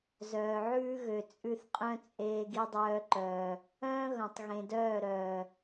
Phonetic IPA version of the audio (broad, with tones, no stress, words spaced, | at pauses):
zœː˨ʕʉː˦ɣø˨ t͡sʼʉ˧θqʼœ̃˦t͡sʼeː˧ɡ i˧dˤœː˧ǃœː˨ | œ̃ː˦ ɣœ̃˨tˤ ɣẽ˨dœː˦˨ɾœː˨